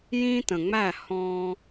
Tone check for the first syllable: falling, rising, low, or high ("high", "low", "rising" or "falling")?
high